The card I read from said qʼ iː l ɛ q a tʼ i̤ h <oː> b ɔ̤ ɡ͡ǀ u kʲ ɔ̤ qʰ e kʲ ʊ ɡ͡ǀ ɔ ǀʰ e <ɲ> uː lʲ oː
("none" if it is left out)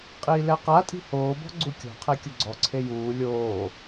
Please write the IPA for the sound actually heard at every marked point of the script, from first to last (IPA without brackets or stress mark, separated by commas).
oː, j